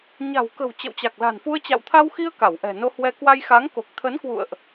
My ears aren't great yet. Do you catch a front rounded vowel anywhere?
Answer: no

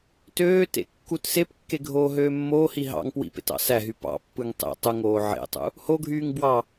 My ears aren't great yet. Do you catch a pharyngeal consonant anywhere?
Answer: yes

